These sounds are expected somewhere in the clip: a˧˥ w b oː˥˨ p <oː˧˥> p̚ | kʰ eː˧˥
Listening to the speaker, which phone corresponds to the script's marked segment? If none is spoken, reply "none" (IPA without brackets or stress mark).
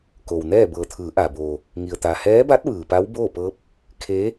ɤː˧˥